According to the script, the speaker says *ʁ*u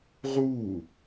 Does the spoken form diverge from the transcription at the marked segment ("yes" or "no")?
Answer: no